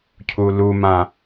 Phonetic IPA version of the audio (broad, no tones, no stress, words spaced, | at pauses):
cʰulumã